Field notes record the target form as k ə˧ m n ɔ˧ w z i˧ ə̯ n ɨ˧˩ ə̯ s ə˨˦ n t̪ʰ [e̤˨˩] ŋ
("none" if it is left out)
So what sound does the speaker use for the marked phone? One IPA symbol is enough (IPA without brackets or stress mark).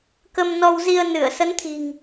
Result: i̤˨˩